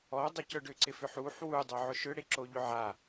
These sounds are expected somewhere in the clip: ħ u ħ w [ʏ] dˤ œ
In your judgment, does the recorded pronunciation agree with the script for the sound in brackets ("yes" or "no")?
no